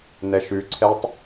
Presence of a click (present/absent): present